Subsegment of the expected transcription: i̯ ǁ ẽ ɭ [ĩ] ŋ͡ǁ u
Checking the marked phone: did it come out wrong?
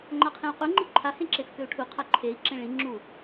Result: no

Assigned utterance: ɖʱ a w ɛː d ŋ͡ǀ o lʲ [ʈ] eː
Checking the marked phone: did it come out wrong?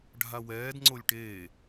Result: no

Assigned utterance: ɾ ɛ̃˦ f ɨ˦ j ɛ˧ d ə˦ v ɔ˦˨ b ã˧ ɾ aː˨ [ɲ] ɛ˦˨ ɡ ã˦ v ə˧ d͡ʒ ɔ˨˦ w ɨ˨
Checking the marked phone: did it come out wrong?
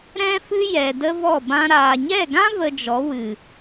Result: no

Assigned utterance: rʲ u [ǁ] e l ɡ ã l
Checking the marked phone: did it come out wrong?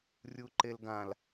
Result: yes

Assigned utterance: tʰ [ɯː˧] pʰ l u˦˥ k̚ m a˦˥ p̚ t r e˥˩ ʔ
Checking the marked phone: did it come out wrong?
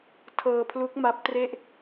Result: yes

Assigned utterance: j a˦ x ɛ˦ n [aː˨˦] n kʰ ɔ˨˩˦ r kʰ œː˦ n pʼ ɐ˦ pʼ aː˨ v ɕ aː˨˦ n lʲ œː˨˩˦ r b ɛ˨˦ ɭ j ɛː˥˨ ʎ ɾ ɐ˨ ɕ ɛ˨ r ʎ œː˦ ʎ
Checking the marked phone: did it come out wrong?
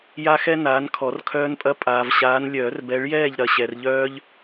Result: no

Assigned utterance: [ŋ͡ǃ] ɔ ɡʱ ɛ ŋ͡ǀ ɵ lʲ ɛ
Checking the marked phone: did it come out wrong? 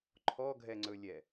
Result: yes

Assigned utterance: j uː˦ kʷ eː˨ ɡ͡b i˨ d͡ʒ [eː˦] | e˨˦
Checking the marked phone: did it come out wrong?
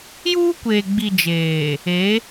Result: yes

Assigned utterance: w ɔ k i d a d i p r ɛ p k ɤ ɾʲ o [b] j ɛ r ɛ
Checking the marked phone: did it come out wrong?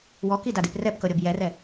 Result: no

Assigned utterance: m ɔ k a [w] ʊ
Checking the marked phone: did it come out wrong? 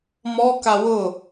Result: no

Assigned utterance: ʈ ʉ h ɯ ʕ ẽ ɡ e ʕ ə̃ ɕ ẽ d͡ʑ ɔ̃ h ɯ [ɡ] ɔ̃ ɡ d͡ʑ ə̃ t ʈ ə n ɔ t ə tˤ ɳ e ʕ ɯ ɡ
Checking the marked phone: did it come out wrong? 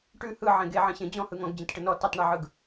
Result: yes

